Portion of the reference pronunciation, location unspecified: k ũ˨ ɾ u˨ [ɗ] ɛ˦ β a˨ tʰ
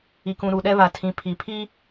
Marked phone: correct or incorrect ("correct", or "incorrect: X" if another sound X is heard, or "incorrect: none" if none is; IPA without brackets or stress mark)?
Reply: correct